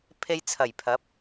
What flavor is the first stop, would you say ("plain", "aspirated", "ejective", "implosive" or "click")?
aspirated